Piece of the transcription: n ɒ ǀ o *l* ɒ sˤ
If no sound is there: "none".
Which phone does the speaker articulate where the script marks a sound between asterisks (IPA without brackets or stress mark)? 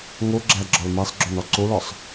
l